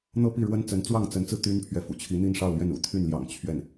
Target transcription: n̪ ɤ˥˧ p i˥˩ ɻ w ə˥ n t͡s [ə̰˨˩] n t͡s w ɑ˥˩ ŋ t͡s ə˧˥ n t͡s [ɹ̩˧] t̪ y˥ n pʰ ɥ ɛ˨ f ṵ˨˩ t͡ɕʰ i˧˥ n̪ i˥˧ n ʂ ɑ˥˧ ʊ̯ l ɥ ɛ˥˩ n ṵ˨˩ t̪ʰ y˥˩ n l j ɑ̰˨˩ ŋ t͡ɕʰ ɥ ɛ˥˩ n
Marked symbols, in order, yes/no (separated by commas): no, yes